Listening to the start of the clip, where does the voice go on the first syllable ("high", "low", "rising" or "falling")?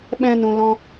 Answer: high